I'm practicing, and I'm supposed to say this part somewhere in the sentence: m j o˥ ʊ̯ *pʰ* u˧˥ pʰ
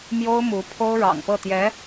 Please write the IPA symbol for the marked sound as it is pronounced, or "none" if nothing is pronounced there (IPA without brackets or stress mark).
m